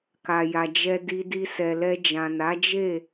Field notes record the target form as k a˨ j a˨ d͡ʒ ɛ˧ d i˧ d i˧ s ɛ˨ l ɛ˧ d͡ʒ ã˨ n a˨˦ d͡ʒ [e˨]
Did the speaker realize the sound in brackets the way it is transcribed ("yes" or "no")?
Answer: no